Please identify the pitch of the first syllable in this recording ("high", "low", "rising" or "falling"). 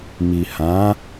low